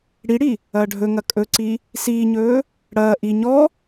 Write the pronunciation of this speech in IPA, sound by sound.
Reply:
ɽ i ɽ i | ɐː ɖʱ ɵ ŋ ɐ kʼ ɵ ǀ i | s iː ɲ ɵː | ɽ ɐː ʔ i ɲ ɔ

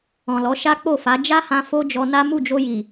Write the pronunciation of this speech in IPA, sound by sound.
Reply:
ɔ̃˨ l ɔ˨˦ ʃ a˦ k͡p o˦˨ f a˨˦ d͡ʒ a˦ h ã˧ f o˦ d͡ʒ ɔ˧ n a˦ m u˦˨ d͡ʒ o˧ j i˨

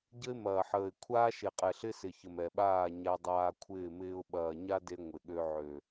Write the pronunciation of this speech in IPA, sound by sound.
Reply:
ɟ ə˦ ɪ̯ m ɐː˨ ħ əː˨ ɪ̯ kʷʰ aː˦ ʃ e˨ qʼ ɛ˨ ɬ ɪ˦ s ɪ˨ ç ə˨ m ɛ˨ ɓ aː˦˨ ɲ a˦ dˤ aː˦ kʷʰ ɪː˦˨ m ɪː˦ ʊ̯ ɓ ɐː˨ ɲ a˦ d e˦ ŋʷ ɪ˨ ɠ ø˦ ʕ ø˨

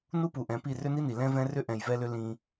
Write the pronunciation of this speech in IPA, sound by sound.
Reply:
n u˦ p u˨ ʔ ɛ̃˨˦ p i˦˨ r ʏ˦ n i˦ n i˨ l ɛ̃˦ v ɛ̃˦ r ʏ˦ ʔ ɛ̃˧ j v ɛ˦ l ʏ˦ l ĩ˦

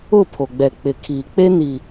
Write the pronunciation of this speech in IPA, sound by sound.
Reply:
ʊ˦˨ pʰ o˨ ɡ͡b ɛ˨ k͡p ɪ˨ kʰ iː˨ k͡p e˦ n i˨

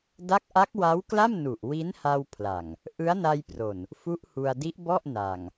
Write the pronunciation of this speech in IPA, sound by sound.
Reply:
d a˦˥ k̚ ʔ a˦˥ k̚ w a˦˥ w k l a˥˩ m n u˨˩ ʔ w i˦˥ n h a˧ w pʰ l a˨˩ ŋ | ʔ ɯ˦˥ a̯ n a˧ j p r o˨˩ n | f u˦˥ ʔ h u˧ a̯ d i˦˥ ʔ b ɔ˥˩ ʔ n a˨˩ ŋ

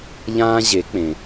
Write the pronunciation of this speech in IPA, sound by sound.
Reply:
ʎ ãː˦ ʑ e˨˦ k͡p ẽ˨

